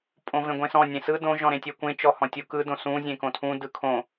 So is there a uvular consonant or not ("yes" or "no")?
no